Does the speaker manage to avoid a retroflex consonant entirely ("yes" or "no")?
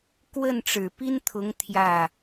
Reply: no